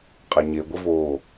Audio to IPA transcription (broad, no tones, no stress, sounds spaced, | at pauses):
qʼ a ɲ e ɡʷ e v oː